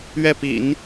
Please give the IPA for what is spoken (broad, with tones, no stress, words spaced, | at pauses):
ɥɛ˥˩pḭ˨˩˦n